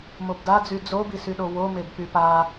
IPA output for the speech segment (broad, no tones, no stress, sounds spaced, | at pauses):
m o b d a d͡z y d͡z o b i s y ɗ o w o m e b p y p a